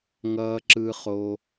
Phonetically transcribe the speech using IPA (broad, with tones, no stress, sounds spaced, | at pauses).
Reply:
ŋ ʌː˦ ǁ ɯ˦ χ o˦